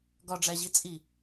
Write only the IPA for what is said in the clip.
ɡ ɒ ɖ͡ʐ æ ʑ i t͡sʼ i

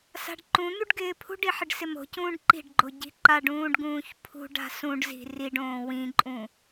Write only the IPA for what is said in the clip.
s a̤ ɖ ǃ ũ n̪ u ɖ ɡ ɪː pʰ ṳ ɖ i ħ ɪ ɖ s ɪ m o̤ c ũː ɖ ǃ i̤ ɖ ɡ͡ǃ o ɟ i̤ ǃ a ɖ ũː ɖ ɡ ũː ç pʰ ṳ ɖ a̤ s ũ ɖ z i̤ r i ɖ õː w ĩ ǃʼ ũ

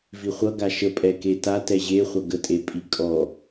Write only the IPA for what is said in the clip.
v i χʷ ʌ ɡ a ʃ ə pʼ ɛ k e t a t ɛ ʑ e χʷ ʌ ɡ ə tʼ e pʼ i kʼ ɔ

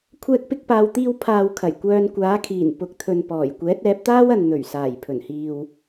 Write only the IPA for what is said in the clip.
kʷʰ ɛː˧ k̚ p ɪ˧ k̚ p aː˨ w t̪ iː˧ w pʰ aː˨ w kʰ ɐ˨˩ j kʷ œː˧ n kʷ aː˨˥ kʰ iː˨˩ n p ʊ˨˥ k̚ t̪ʰ ɵ˨ n p ɔː˨˩ j kʷ ɛː˨˥ t̚ ɛː˨˥ p̚ t̪ aː˥ w ɐ˨ n n̪ ɵ˨˩ ɥ s aː˨˩ j pʰ ɵ˨˩ n h iː˨ w

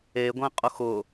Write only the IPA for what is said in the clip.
e ɡʷ ẽ qʼ ʊ x ʊ

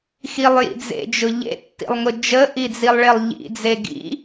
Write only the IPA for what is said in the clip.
x i lˠ j ḭ d͡z ḛ d͡ʒ ʊ ʎ ḛ tː ḭ lˠ ŋ ʊ d͡ʒ ə ʔ i d͡z i lˠ ɭ e lˠ ʎ ḭ d͡z e ɡ ḭ

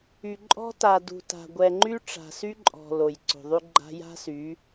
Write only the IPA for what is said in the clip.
y˨ ǃʼ ɔ̤˦ t a˨ d ṳ˨ t a̤˨ ɡʷ ɛ˨ ŋ͡ǃ y˦ ʈ͡ʂ a̤˨ s y˦ ǃʼ ɔ̤˨ l o˨ j ǀ o̤˨ ðˤ ʉ˦ ɡ͡ǃ a̤˦ j a̤˦ s y˨˦

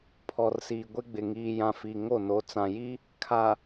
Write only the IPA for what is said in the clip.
pʰ ɔ˨ r s iː˨ ɡʷ ɪ˦ ɡ͡b ɪ˨ ŋ iː˨ j ã˨ f i˨ ŋ o˦˨ n o˨ t͡s ã˨ j i˦ | kʰ a˨

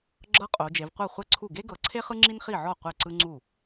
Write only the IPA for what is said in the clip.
ɡ͡ǁ ɤ˥ qʼ o˨˦ d͡ʒ e˨˦ v qʷ ɤ˥˩ χʷ ɛ˥ ǀʰ u˥˩ ɡ e˥ ɡ ɤ˨˦ ǀʰ e˥ χ ɯ˥ ŋ͡ǁ i˥ n χ i˥˩ ʕ ɔ˥˩ qʷ ɛ˥˩ ǀ ɯ˥ ŋ͡ǀ u˥˩

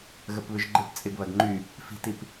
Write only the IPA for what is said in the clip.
ɣ ə p β ʏ ʒ ɡ͡ǃ ɪ p t͡sʼ ɪ ɡ β ɐ ɡ ŋ͡ǃ y | f i̤ t i p

